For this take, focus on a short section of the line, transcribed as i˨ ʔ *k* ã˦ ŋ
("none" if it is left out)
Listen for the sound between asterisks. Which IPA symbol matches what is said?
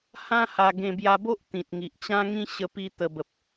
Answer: t͡ɕ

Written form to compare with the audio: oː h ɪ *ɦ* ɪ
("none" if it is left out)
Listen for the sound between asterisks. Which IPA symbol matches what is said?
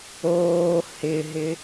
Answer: ɦ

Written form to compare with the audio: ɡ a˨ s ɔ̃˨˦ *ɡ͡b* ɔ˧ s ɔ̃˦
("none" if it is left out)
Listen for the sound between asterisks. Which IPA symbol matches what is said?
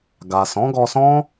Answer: ɡ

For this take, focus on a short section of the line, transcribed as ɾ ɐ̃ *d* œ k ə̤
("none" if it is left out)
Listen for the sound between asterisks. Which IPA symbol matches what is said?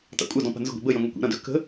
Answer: d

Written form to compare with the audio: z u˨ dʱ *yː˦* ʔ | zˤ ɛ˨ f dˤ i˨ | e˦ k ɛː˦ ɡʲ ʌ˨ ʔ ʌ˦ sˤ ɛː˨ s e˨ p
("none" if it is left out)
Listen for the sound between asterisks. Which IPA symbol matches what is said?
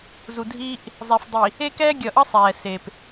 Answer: iː˦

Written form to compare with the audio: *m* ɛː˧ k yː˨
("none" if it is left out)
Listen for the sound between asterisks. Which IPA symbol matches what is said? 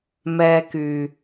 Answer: m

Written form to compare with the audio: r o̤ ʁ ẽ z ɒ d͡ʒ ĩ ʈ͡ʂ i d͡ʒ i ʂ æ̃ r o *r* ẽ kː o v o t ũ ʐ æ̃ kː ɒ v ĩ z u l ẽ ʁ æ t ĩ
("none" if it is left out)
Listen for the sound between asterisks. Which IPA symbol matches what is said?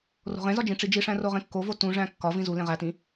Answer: ʁ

